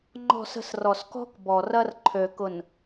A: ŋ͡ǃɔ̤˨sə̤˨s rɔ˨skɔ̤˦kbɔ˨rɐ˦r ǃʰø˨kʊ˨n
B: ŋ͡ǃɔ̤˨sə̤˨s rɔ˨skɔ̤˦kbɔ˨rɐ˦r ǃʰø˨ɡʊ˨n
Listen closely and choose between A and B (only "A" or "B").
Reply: A